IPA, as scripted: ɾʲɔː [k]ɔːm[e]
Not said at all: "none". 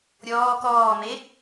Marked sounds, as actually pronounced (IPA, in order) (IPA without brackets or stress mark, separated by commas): k, e